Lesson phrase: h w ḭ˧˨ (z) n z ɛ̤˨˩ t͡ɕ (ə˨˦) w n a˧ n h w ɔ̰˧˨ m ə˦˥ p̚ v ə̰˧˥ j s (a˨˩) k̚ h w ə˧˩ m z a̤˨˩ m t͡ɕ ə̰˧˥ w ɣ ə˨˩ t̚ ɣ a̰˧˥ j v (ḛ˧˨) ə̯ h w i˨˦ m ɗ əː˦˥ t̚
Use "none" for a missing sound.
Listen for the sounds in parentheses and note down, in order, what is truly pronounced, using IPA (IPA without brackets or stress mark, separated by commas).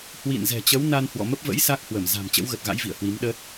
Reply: none, ə˨˦, a˦˥, ḭ˧˨